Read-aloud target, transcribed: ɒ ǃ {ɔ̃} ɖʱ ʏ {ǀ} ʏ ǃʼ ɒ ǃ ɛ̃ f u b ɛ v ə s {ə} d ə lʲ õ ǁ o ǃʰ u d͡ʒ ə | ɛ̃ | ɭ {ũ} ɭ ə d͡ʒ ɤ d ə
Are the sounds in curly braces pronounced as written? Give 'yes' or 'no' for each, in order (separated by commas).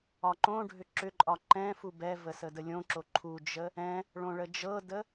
no, no, yes, no